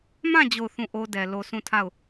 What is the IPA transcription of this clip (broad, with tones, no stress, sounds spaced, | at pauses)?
m ã˦˨ d͡ʑ o˦˨ ʊ̯ θ ũ˦˨ ʔ o˦ d ɛ˨ l o˨ s ũ˦˨ tʰ a˦˨ ʊ̯